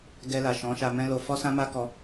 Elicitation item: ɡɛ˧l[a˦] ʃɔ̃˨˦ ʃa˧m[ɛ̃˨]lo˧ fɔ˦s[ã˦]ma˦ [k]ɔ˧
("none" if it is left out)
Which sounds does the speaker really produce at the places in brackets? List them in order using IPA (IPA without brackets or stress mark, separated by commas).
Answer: a˨, ɛ̃˦, ã˦, k